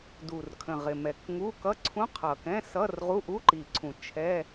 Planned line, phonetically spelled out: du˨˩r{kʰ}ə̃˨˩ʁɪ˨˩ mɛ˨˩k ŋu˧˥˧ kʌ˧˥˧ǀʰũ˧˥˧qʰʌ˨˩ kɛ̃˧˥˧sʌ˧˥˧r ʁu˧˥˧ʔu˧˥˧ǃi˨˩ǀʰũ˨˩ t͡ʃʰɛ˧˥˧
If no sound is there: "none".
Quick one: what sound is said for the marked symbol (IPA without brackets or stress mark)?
kʰ